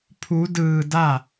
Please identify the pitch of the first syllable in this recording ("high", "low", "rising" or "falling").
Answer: rising